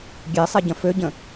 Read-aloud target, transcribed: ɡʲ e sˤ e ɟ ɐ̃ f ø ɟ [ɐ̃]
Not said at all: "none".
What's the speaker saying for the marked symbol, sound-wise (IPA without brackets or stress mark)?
ə̃